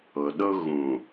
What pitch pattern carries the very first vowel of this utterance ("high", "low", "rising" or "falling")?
low